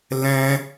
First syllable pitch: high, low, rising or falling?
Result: high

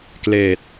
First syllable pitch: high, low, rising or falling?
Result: low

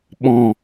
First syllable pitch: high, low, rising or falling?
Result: low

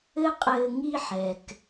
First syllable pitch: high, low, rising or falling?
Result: high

